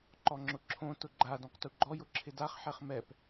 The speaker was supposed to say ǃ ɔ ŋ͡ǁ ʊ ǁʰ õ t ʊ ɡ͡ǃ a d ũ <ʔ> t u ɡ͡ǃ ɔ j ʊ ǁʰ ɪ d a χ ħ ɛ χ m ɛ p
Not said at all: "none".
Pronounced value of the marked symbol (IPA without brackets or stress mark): q